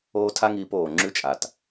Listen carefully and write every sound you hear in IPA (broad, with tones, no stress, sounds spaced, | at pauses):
oː˦ tʰ a˦ ŋ iː˧ p oː˨ ŋ͡ǁ ʉ˦ t͡ʃʼ a˨ t